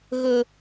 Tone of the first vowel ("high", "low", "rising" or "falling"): high